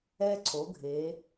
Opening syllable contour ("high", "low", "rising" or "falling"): high